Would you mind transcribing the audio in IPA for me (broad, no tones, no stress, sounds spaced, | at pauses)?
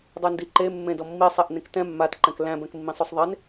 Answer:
dˤ e n d i ǃ e mː ẽ d ɔ mː i sˤ e ʔ n ẽ k t ɛ̃ mː a t ǃ ɛ̃ k l æ̃ b ɛ̃ k mː ĩ sˤ o sˤ ðˤ e n